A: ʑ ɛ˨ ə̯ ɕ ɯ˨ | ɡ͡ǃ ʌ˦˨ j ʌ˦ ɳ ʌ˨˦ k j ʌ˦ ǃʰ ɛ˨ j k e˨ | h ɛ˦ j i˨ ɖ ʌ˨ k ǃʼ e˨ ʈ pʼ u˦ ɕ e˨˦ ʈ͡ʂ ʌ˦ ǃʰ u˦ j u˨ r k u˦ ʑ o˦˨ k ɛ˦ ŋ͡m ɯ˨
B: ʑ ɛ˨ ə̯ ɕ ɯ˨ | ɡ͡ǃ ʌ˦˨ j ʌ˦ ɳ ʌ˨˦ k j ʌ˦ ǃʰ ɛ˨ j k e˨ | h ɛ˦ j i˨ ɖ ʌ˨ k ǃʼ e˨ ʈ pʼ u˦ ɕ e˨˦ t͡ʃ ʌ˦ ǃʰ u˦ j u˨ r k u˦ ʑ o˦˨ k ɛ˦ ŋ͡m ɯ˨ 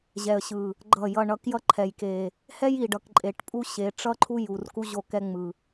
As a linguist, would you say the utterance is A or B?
A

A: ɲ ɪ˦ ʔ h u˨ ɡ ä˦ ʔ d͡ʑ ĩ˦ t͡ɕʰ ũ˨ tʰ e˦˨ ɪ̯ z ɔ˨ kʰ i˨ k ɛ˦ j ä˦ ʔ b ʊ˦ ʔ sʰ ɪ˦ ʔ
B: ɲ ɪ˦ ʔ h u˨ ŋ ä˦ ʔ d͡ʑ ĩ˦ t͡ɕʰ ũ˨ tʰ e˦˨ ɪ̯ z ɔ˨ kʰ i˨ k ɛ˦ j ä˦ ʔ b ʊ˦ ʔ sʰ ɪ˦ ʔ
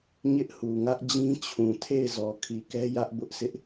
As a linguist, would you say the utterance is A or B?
B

